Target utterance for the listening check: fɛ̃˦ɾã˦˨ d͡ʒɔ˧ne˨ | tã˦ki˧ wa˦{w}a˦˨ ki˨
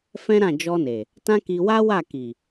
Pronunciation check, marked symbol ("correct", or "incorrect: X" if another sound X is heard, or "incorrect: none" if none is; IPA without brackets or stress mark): correct